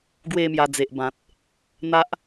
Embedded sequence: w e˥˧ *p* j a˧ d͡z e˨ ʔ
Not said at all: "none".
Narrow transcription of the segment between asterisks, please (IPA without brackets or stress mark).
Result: m